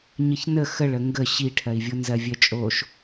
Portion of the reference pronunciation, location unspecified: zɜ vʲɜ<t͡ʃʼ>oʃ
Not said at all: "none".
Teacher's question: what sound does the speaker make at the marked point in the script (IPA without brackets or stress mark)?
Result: t͡ʃʼ